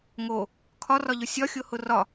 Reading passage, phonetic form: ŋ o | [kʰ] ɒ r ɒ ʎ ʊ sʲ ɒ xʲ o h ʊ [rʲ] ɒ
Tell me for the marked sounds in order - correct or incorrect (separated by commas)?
correct, incorrect